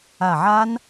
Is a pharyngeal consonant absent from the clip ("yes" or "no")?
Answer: no